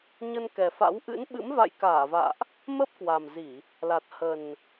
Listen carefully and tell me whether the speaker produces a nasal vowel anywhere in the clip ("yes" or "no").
no